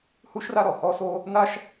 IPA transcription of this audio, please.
hu˥ʃra˥ ɾɔ˩hɔ˥so˥ | n̪a˥ʃ

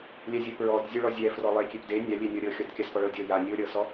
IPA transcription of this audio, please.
lʲɛzʲɤ pɹɔd zʲoɭɔzʲɛ frɔlˠekʲep de nʲa lʲenʲɔɾʲɤ xʲɔdkʲaspɔɭɤ dʲɤ ja nʲoɾʲɤsɔ

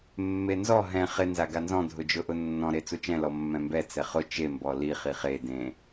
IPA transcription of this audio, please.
mːenzɔ ɦɛ̃ χɪ nzaɡanzɔ̃ dʱʊd͡ʒʊʔʊnːɔ̃ ɾet͡sut͡ʃɛ̃ lɔmːɛ̃mbɛ t͡sɛχʊ t͡ʃe mbɔli χiχe dẽ

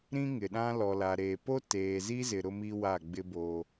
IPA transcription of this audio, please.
ɾĩ˦ŋɪ˨ɗã˦ lɔ˨la˨ɾeː˨ po˦teː˨zi˦zɪ˨ ɾʊ˦mi˦ wa˦˨ɡ͡bɪ˦bo˦

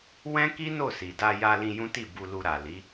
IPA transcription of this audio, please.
wɛ̃˦ki˦ no˦˨si˨ da˧ja˧lĩ˧ jũ˦ti˦˨ bu˧lu˧ ɾa˨li˨˦

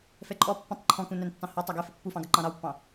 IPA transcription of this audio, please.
fɛǃʼɔ pːɔ̃tˤǃʰɔ̃kũ næntːɑ̃hɒ tˤæɡɛ fɪpːufɑ̃ɡʌ ǃɑ̃ɾɑwpːɑ̃

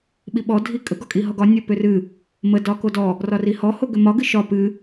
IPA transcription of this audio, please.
ɓiɓɔ dʱikʼə ɡɒkʼiɦɔɡɒ nʲo pʏrɨ | mə dɒkodɔ | rɒrihɔ hoɡʏmɒ ɡɨʃɒ pɨ

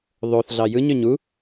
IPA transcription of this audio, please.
ðˤoθ ɮɑjɯɲ øɲu

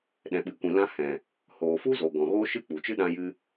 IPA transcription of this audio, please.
ɗɛ̃˨ɓɨ˨kʷĩ˨lã˧ hɛ̃˨ | hoː˨fu˦zo˨ ɡɔ̃˨ ɣoː˦ʃɨ˦k͡pu˨t͡ʃɨ˦ ɗã˦jɨ˦

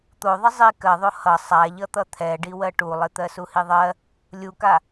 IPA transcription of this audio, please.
t̪oðˤə zˤi kɜðˤo hʌ sˤaʎʌt̪ʌ t̪ʰɛɖi wɜʈulˠɪ t̪ɜsuhiðˤɜ | lʲuka

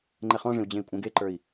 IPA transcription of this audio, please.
ŋ͡ǃɛχɔ̃ʐẽu̯ d͡ʑẽi̯kʷʼɛ̃ɡeǃə˞i̯

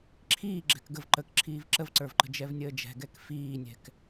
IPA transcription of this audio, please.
ǁʰiː ɡ͡ǁɛ̤kɡəv ǃək ǁʰiːvǁəvǀə˞vǃə̤ d͡ʒɛvnʲəːd͡ʒɛ̤ ɡɛkfiːnʲɛ̤k

